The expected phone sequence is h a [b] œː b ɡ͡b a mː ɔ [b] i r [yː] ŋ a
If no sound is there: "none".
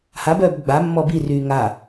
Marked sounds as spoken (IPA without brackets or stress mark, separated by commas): b, b, yː